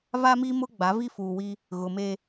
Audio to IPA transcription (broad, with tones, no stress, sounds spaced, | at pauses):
v a˦ m i˦ m ʊ˦ ɡ͡b a˨˦ v i˦ f uː˨ w i˦ | ɣ ʊ˨ m e˦